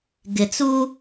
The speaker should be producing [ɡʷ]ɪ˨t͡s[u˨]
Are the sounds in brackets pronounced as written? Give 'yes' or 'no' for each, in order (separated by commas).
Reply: no, no